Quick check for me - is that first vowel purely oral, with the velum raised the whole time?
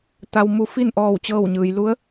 yes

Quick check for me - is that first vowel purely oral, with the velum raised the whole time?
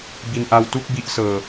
yes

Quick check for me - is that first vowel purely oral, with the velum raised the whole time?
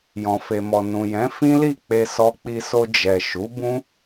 no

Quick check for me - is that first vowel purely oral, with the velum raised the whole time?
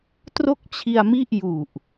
yes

